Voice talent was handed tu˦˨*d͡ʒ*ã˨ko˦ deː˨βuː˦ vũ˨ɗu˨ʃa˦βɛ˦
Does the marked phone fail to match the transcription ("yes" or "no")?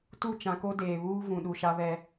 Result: yes